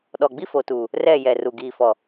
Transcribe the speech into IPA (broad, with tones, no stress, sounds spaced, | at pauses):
ɗ ɔ˨ ɡ͡b i˦ f o˨ t uː˨ | r ɛ˦˨ j ɛ˨ r u˨ ɡ iː˨ f ɔ˨